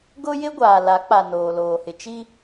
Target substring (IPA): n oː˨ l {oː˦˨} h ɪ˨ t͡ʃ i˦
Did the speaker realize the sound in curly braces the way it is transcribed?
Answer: no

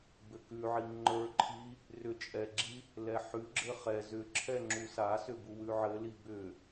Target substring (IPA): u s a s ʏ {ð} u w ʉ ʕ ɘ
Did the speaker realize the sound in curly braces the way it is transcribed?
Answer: no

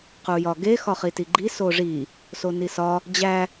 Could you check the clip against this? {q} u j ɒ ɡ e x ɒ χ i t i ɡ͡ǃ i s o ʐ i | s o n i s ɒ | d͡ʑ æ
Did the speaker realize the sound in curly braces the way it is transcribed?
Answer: yes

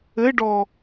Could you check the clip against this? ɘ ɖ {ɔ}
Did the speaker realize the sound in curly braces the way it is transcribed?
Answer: yes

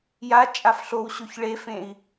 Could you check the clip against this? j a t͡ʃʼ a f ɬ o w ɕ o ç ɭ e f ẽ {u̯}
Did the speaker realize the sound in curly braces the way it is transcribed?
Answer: no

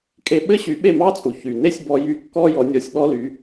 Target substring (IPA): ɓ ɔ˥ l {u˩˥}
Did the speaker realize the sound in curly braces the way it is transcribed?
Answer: no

